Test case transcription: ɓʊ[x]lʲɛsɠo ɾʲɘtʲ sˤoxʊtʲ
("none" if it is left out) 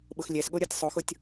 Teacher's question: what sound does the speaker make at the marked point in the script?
x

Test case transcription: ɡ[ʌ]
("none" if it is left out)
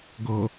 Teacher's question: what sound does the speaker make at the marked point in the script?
ʌ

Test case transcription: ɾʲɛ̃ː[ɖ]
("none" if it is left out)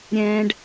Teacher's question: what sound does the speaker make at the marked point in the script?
ɖ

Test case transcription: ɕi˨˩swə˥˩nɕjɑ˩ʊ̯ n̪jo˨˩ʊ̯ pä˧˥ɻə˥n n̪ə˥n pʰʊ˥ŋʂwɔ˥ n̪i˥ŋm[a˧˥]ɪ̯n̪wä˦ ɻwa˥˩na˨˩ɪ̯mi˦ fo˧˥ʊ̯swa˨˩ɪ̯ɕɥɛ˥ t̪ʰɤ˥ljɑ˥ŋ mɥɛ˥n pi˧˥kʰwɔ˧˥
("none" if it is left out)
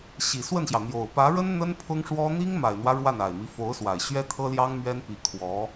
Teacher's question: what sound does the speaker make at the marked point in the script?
a˨˩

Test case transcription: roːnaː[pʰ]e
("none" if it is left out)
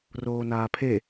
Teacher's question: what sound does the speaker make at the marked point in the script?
pʰ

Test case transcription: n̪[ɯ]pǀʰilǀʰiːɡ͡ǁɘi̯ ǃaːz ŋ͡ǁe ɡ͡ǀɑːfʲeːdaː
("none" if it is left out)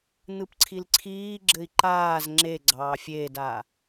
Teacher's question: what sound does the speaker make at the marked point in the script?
ɯ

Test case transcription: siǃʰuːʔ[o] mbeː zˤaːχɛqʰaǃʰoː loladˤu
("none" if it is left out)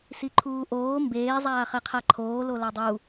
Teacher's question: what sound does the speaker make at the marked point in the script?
oː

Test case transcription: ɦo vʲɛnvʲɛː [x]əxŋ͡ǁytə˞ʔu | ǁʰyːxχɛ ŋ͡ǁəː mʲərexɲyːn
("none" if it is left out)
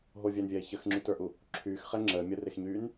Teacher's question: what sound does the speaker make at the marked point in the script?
ç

